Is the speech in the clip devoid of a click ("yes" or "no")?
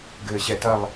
yes